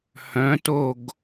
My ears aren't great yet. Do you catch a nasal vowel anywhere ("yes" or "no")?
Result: yes